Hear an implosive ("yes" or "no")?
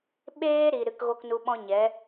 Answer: yes